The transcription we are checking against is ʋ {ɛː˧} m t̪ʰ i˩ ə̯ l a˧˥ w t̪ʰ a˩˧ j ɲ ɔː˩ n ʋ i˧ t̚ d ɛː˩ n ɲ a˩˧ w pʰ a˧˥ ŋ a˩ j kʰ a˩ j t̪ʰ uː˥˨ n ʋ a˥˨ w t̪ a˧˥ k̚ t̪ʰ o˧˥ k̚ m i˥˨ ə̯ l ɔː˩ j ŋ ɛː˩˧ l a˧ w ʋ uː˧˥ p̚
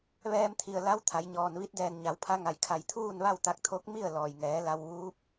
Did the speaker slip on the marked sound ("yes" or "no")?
no